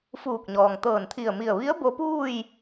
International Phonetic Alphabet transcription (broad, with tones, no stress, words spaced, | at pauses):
fuː˧˩k̚ɲɔː˩ŋ t̪ɤː˧˩nt̪ʰi˧˩ə̯mi˧˩ə̯ ʋi˧˥ə̯ bo˧˥puː˥˨j